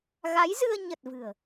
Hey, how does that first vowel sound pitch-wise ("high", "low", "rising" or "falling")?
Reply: rising